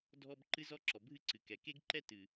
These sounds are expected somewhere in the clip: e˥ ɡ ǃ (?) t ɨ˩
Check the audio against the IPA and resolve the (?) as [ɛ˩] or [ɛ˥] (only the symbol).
ɛ˥